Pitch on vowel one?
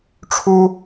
high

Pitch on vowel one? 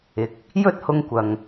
low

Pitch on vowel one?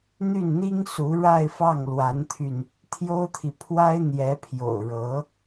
falling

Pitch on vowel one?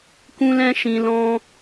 high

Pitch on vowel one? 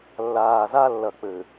low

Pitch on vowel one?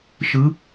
rising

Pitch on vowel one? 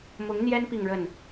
rising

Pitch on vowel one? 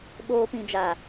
high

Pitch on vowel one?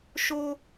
high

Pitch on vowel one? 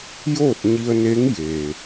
falling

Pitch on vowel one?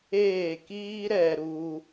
falling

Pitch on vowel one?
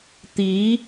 rising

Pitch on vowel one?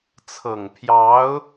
low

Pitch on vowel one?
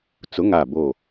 rising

